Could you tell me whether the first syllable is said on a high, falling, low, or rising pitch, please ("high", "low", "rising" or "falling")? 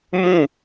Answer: falling